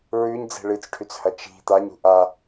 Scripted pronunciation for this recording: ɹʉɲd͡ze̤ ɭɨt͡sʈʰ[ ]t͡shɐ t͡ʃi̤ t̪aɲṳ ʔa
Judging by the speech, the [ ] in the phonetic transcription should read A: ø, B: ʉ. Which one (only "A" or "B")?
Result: B